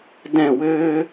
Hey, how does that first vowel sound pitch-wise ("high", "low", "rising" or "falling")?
falling